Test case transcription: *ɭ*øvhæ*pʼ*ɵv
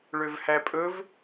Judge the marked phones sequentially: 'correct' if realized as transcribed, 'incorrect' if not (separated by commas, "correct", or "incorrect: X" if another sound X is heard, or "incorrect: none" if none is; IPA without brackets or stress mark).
correct, correct